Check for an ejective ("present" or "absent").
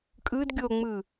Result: present